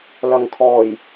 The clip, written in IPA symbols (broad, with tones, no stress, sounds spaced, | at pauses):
l ɐ˨ ŋ kʰ ɔː˨˩ j